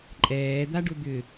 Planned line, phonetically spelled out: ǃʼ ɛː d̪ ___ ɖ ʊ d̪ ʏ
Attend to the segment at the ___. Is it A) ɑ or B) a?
B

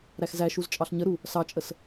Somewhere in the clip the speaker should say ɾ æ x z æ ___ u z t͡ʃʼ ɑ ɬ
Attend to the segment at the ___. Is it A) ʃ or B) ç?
A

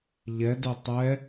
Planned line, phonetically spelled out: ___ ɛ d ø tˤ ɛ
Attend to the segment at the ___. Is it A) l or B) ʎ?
B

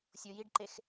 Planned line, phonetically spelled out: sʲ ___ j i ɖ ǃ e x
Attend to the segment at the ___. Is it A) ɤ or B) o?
B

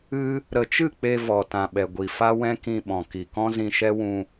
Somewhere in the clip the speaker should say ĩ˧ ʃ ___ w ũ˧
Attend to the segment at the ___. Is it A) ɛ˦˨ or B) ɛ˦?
B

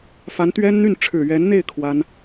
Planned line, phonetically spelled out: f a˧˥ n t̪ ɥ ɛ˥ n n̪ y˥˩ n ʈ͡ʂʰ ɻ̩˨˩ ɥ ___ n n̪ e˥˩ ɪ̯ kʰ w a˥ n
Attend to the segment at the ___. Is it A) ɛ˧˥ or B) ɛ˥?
A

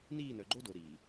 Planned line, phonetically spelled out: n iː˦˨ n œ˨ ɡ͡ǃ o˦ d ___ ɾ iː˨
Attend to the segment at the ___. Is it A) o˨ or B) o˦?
A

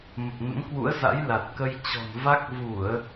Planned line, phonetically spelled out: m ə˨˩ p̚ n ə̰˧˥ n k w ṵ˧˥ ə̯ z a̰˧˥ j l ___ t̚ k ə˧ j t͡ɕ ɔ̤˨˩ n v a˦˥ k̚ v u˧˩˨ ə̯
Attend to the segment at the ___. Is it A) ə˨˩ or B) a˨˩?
B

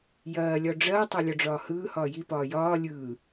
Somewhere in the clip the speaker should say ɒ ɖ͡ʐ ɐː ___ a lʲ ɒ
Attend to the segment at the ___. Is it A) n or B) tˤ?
B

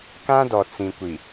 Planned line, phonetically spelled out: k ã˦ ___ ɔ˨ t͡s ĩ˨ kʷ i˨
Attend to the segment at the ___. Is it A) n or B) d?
B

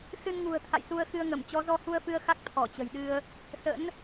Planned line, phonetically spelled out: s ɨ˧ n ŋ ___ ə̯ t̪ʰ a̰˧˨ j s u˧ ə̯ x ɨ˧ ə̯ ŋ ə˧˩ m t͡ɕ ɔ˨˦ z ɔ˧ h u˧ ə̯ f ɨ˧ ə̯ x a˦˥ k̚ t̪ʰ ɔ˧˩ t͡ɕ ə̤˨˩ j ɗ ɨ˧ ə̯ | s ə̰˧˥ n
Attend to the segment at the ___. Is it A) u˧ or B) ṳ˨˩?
B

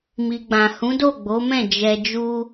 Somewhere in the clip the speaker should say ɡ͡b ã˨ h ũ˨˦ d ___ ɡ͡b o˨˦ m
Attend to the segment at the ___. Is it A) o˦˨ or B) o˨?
A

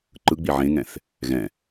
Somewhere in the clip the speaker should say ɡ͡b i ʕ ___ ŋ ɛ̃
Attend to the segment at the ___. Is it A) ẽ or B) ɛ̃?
A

